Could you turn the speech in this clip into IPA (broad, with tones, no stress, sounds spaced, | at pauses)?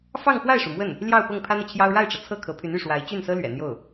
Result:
f ɑ˥˧ ŋ x w a˥˩ ɪ̯ ʂ u˩ m w ə˥˩ n | l j ɑ˥˧ ʊ̯ p ɤ˥˩ ŋ pʰ ä˥ n̪ ɤ˨ t͡ɕʰ j ɑ˥ ʊ̯ ɻ a˥˩ ɪ̯ ʈ͡ʂ ɤ˩ t͡sʰ ɤ˥˩ kʰ ɤ˧˥ pʰ y˧˥ n y˥˩ ʂ w a˧˥ ɪ̯ t͡ɕ y˥˩ n s ɤ˥ l ɥ ɛ̰˨˩ n̪ j o˥˩ ʊ̯